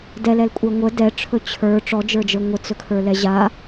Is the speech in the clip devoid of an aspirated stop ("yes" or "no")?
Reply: no